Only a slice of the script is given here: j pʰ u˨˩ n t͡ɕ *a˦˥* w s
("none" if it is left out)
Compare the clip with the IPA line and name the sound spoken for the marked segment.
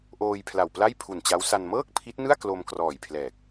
a˦˥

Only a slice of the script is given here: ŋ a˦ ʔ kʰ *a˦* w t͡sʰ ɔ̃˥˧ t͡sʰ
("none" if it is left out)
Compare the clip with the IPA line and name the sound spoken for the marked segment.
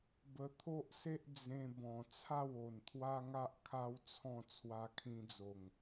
a˦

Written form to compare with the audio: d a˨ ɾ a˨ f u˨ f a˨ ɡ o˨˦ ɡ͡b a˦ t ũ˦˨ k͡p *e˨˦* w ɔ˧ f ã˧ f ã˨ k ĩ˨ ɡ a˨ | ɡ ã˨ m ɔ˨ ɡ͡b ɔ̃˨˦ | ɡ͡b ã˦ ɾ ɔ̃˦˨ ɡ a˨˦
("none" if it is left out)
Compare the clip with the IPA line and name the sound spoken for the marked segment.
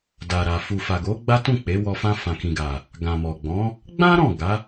e˨˦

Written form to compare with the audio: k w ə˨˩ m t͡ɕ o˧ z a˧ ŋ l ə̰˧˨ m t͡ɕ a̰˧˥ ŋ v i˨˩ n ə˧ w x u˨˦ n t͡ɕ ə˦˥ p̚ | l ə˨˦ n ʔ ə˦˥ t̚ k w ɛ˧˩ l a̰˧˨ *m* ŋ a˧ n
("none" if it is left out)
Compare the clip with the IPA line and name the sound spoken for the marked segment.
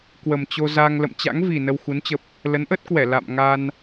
m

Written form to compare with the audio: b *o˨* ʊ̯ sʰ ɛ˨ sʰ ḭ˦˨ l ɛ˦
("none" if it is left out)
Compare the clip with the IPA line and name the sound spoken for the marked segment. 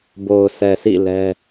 o˨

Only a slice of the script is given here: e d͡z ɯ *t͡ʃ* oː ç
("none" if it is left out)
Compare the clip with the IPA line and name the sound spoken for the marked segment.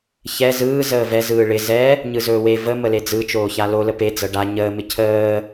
t͡ʃ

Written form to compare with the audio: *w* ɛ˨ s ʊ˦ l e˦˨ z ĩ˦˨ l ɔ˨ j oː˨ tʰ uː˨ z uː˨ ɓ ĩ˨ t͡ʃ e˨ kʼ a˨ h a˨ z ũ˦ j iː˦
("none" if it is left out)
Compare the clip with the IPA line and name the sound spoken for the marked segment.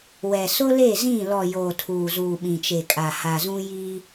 w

